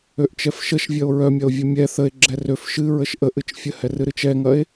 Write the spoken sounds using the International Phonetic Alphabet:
øʔt͡ʃɛfʃəʃvʲɐo̯ ɹœmʲɐo̯ vʲəmʲɛ θəe̯ ɡ͡ǁɛrøf ʃɨɹəʃ ʔəʔɨt͡ʃ fʲəhɛrɨɾɨt͡ʃ ɛŋɐe̯

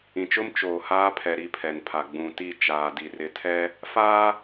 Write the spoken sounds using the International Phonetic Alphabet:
ĩ˨t͡ʃʊ˦m t͡ʃoː˨haː˦pʰɛ˨ ɾi˦pʰɛ˨npʰa˨ ɡ͡bũ˨ti˦˨ t͡ʃaː˨di˨ rɪ˨tʰɛ˦ | faː˦

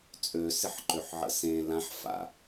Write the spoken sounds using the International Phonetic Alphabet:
t͡sʼø sɪħǃøħʕə̰sẽ lãħfa̰

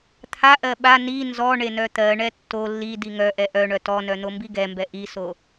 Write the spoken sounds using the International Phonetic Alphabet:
t̪ʰaʔɜ ɓa ni nzɔɳe nœt̪ɜɳɛ tːo lːi diŋœʔɛ ʔœɳœ tɔnœ n̪ombiɡɛmbɛ ʔiso

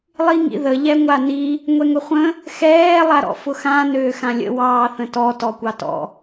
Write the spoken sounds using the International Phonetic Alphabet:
lˠiŋḭðə ʎɛŋʷani | ŋʷɛŋʊχʷə̃ | xɛː lˠaɾɔ̰fʊxã nøːxãlʲə̰ wɑːθə̃tɔ tɔkʷɑtɔ̰

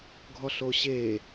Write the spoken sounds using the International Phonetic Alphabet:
ɡʱɔɬoɕe

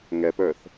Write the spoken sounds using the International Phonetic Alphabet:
ŋɛpə˞θ

